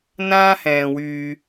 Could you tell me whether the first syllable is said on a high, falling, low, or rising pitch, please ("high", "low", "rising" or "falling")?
high